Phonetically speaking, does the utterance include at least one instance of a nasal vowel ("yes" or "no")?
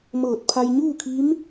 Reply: no